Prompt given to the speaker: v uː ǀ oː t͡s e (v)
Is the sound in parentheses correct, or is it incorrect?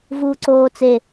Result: incorrect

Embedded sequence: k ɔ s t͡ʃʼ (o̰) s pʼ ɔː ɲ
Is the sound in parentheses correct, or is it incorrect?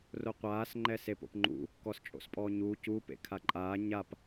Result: correct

